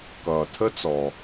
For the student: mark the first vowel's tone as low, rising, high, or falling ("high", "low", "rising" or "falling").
low